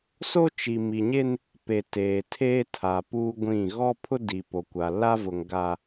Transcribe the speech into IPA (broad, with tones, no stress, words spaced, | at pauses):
so˦t͡ʃi˨mi˨ɲe˦n | pe˨ teː˨ tʰeː˦tʰa˨ puː˦ɡʷĩ˦˨ ɣɔ˦pʰʊ˦ di˨po˨kʷa˨ la˦vʊ˨ŋɡa˨